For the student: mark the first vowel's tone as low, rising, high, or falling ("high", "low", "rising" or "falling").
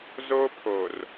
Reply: high